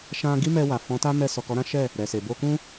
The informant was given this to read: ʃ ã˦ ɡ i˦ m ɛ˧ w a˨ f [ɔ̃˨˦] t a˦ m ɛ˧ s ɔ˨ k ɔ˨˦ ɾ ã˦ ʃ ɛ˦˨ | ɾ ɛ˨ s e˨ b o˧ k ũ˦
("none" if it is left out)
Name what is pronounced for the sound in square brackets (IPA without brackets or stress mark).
ɔ̃˨˦